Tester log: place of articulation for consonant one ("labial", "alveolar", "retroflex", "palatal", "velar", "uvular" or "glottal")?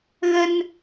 velar